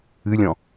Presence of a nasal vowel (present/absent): present